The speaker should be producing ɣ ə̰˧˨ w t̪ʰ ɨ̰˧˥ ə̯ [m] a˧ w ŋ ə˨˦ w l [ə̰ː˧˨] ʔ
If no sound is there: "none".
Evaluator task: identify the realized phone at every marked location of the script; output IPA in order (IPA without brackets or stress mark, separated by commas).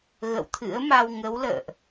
m, ə̰ː˧˨